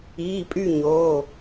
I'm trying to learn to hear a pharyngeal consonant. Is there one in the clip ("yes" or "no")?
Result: no